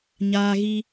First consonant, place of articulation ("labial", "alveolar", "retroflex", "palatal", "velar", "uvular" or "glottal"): palatal